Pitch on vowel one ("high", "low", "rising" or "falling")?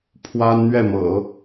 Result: high